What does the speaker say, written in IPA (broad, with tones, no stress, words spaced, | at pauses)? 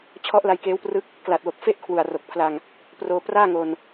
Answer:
t͡ɕʰɔ˦˥ʔ la˧jkeː˦˥wprɯ˦˥k̚ | kla˨˩t̚wo˨˩k̚ fe˥˩ʔkʰwu˨˩a̯ro˨˩k̚pʰla˧ŋ | proː˧ praː˥˩ŋo˧n